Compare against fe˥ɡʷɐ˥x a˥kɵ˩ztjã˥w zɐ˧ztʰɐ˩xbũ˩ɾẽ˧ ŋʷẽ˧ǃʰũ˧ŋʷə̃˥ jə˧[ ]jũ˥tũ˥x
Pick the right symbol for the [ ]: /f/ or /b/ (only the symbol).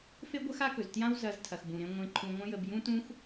b